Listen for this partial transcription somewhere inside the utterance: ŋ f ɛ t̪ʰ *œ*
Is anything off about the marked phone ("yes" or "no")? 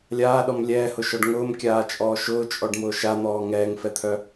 no